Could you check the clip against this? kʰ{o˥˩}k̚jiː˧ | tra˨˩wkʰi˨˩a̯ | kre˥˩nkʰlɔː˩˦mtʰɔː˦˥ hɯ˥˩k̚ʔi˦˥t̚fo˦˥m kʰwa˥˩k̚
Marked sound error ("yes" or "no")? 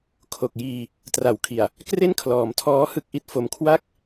yes